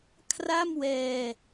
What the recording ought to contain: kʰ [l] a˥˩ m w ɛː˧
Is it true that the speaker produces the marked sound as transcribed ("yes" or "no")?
no